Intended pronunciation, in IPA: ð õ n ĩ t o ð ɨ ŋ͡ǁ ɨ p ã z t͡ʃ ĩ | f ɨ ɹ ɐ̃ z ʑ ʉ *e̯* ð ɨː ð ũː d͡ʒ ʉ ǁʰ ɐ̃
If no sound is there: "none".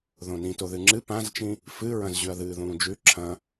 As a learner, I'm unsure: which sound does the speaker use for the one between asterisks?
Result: ɐ̯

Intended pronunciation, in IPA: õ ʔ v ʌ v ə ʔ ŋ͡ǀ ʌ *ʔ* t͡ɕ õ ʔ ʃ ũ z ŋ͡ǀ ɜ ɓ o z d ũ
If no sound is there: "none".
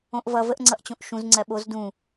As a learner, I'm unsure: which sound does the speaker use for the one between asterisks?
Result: ʔ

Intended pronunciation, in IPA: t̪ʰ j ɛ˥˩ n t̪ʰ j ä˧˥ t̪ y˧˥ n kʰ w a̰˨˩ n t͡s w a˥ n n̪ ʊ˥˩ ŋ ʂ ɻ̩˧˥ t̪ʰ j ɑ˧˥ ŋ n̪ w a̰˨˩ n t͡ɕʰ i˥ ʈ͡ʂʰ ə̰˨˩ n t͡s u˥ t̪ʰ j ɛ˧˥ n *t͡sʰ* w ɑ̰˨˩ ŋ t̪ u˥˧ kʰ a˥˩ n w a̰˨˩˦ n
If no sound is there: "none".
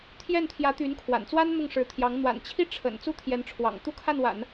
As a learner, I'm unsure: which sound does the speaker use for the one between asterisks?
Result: ʈ͡ʂʰ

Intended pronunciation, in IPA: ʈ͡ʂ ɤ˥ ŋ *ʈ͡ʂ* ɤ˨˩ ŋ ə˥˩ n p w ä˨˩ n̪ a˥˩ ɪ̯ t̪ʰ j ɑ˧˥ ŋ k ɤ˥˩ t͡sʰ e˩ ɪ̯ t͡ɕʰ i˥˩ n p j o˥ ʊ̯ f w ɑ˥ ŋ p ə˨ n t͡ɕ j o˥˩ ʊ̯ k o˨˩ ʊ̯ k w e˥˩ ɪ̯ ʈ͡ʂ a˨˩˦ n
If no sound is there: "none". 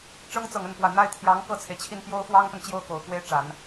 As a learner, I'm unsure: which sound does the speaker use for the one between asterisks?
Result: t͡s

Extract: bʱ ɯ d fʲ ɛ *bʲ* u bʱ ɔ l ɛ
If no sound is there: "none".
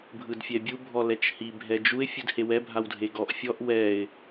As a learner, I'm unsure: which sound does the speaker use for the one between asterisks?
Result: bʲ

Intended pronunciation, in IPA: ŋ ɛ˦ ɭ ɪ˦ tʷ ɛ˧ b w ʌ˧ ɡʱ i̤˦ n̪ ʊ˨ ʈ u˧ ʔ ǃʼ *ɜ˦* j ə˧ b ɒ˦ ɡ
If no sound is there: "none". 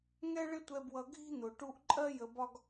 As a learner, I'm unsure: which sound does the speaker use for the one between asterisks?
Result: ɜ˦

